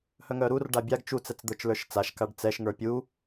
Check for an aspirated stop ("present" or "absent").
absent